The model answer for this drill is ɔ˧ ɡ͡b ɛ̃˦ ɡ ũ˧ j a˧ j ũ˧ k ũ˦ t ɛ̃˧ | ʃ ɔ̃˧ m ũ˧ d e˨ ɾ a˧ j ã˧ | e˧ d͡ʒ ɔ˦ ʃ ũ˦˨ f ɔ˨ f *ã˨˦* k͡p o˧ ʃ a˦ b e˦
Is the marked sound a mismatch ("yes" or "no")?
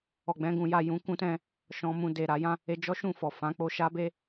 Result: no